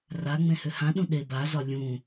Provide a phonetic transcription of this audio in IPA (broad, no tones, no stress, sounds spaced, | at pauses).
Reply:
r a ŋ͡m ẽ h ʏ h ã ɗ ũ ɗ e b a z ɒ lʲ ũ